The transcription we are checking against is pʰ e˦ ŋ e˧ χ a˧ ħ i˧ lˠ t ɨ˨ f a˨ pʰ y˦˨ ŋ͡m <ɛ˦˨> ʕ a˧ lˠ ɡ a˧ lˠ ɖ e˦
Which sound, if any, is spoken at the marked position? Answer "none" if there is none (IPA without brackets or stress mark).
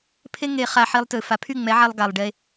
ɛ˨˦